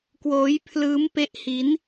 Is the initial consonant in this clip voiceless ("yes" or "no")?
yes